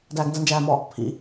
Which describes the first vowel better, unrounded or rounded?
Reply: unrounded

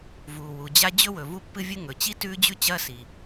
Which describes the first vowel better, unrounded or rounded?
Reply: rounded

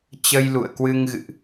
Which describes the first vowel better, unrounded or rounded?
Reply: unrounded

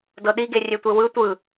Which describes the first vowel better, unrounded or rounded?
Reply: unrounded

